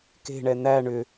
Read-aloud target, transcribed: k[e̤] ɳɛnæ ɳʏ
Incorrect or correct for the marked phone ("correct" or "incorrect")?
correct